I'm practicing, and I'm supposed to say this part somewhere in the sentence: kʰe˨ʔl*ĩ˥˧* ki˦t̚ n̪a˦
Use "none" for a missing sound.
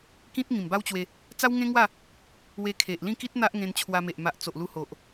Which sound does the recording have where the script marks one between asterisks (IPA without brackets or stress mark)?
ĩ˥˧